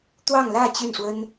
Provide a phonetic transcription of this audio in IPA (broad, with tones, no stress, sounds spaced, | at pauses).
t̪ w ɑ˥˧ ŋ l ä˥˧ t͡ɕ y˥˩ n ʂ w ə˥ n